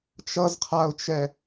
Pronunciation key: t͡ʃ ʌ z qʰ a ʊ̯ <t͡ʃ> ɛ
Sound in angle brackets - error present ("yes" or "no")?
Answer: no